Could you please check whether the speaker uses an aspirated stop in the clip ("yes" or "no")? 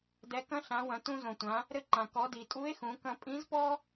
no